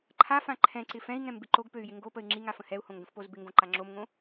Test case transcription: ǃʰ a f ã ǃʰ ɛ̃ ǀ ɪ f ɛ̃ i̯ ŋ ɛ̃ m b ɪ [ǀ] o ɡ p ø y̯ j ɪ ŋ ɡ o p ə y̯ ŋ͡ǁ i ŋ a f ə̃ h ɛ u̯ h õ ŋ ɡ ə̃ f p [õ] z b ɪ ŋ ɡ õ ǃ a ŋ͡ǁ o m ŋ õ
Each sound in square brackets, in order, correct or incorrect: incorrect: ǃ, incorrect: o

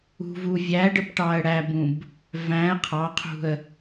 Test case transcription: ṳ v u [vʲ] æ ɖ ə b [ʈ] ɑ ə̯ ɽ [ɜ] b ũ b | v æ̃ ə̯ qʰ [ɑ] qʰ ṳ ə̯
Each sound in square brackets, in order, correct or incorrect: correct, correct, incorrect: æ, correct

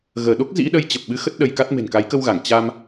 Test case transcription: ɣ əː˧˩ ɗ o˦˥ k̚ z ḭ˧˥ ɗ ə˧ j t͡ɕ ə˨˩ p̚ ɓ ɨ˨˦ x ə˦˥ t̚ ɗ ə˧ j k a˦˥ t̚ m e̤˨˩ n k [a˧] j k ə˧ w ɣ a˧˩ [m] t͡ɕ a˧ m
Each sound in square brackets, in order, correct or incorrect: incorrect: a˨˦, incorrect: ŋ

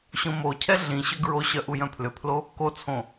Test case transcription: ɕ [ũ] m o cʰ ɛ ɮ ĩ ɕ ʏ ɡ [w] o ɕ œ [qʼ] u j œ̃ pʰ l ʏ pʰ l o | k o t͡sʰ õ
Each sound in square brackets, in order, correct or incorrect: incorrect: õ, incorrect: ɹ, incorrect: ʔ

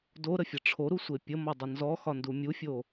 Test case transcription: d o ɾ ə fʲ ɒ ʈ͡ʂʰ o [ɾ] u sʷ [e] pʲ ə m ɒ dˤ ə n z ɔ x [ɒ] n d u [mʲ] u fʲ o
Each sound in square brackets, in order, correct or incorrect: correct, correct, correct, correct

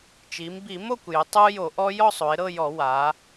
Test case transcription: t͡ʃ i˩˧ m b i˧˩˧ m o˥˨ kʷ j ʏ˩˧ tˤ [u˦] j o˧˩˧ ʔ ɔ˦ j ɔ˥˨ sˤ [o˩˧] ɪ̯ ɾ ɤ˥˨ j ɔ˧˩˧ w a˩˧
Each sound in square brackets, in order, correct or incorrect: correct, correct

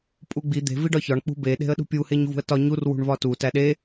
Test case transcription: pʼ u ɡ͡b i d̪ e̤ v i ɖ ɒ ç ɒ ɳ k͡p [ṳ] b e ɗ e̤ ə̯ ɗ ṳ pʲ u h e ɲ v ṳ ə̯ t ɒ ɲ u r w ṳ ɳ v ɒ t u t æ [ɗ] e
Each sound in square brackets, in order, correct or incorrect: correct, correct

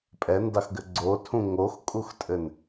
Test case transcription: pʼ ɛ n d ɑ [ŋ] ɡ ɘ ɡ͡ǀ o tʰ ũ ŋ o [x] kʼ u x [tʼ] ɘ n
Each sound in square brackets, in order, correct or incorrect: incorrect: x, correct, correct

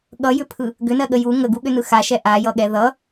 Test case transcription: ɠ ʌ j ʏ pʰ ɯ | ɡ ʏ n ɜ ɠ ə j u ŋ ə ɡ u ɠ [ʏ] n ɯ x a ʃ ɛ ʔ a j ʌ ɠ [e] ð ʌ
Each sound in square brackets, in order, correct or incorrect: correct, incorrect: ɛ

